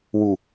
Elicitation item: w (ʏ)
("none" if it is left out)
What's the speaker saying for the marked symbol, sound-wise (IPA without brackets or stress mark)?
u